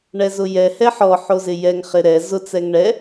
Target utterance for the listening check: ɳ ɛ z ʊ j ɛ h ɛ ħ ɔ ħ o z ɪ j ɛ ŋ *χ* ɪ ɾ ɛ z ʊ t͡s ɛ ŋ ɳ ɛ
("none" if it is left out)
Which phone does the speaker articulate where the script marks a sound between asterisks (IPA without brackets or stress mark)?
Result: χ